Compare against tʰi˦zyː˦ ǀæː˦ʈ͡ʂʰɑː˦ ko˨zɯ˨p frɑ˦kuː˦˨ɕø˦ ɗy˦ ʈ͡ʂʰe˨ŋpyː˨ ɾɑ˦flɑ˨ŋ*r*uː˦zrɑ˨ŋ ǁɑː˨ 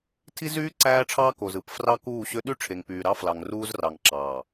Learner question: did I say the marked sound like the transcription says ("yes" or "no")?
yes